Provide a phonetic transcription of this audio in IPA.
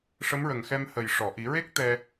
ʂ ə˧˥ m ɹ ə˨˩ ŋ x ɛ˧ m h ə˨˩ j ʂ ɔ˨˩˨ ʔ i˨˩˦ ɹ e˦˥ k̚ t̪ ɛ˧

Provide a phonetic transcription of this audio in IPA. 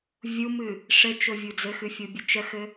vʲ u m ɨ | ʂ ɘ t͡ʃ ʊ vʲ u d͡z ɘ x ɨ fʲ u bʲ ɘ t͡ʃ ə x ɘ

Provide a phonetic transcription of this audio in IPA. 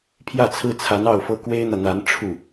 pʰ j ä˥˩ t͡sʰ ɹ̩˥ t͡sʰ a˧˥ n ɑ˥˩ ʊ̯ f ɤ˥ k w e˥ ɪ̯ n̪ ä˨ n̪ a˧˥ n ʈ͡ʂʰ u˥˩

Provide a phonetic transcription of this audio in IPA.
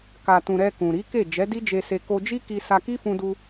k a˨ t ũ˨ ɾ ɛ˧ k ũ˨ ɾ i˨˦ k e˦˨ d͡ʒ ɛ˨˦ d i˦ d͡ʒ e˧ s e˧ k o˧ d͡ʒ i˦ k i˧ s a˧ k i˦ f ũ˧ d u˧

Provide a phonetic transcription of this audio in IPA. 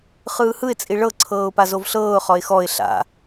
χ ɯː h ɯ ɪ̯ t͡sʼ i ɭ ɤ ǀʰ ɤː ʊ̯ p a z o v ɬ ɤː ʊ̯ χ ɔ ɪ̯ x ɔ ɪ̯ ɬ a̰

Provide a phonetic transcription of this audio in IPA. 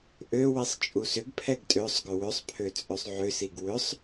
ʔ ø w i sˤ t͡ʃʼ u s ʏ ɡ pʰ ɛ ɡ tʼ ø sˤ ɡ ʏ w ʏ sˤ pʰ ø t͡sʼ ø sˤ ʕ ʏ s i ɡ w ʏ sˤ

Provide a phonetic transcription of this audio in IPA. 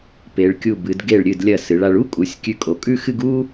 p e˩˧ ɭ kʲ u˧˩ b ɨ˩˧ d ɡ e˧˩ ɭ ɾʲ ɨ˧˩ d lʲ ɐ˧˩ s ɨ˩˧ ɭ a˧ ɭ u˥ kʼ u˩˧ sʲ kʲ ʉ˧ kʼ o˩˧ kʼ ʉ˥˧ x ɨ˥˧ ɡ u˥

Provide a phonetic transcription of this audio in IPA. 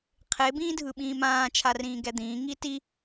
qʰ e b ĩː dʱ ɯ ɓ ĩː m ãː t͡ʃʰ a r ĩː ɡ ɛ d̪ ĩː ŋ i t i

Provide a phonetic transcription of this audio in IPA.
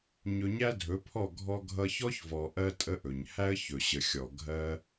ɲ ɵ˧ ɲ æ˦ dʱ ɵ˨˦ pʰ ɔ˦˨ ɡʱ ɔ˦ ɡʱ ʌ˦ ç ɔ˦ ç v ɔ˨ ʔ ɜ˦ tʼ ə˦ ʔ ɵ˨ ɲ h æ˦ ə̯ ç ɵ˨ ɕ ə˨ xʲ ɔ˨ ɡʱ ɜ˧

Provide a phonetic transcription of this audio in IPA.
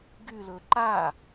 ɡ y l ɵ ǃ a

